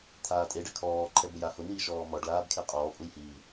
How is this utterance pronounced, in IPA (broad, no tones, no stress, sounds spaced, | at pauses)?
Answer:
t̪ʰ aː tʼ e ɖ a kʰ ɔː ǃʰ ɛ b ʊ j a h ʊ n̪ iː ʃ ɔː m ɔ ɖ l aː b kʰ e qʼ ɔː pʼ u j h i